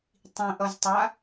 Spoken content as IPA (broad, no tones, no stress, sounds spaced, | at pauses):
tˤ ĩ ʔ ʌ z tˤ a